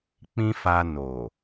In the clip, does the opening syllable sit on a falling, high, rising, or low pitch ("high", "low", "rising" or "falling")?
high